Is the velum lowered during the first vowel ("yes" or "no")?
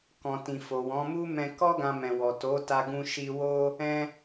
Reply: yes